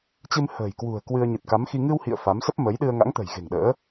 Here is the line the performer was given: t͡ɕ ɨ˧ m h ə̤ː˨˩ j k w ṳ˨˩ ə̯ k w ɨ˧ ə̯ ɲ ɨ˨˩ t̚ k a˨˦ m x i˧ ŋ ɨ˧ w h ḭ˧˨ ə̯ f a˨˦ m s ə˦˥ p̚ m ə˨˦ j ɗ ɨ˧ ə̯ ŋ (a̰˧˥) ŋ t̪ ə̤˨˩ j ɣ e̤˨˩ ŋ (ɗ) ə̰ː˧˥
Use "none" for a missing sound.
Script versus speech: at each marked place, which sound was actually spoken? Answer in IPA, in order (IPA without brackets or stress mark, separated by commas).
a̰˧˥, ɗ